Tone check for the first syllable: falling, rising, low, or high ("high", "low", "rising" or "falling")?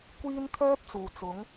high